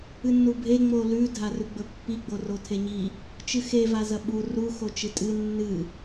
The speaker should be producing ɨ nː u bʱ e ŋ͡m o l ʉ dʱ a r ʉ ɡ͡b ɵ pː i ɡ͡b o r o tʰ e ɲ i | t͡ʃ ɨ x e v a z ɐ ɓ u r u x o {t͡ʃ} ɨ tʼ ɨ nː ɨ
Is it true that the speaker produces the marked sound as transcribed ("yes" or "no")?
yes